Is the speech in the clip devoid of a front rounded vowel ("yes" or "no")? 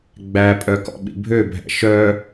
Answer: no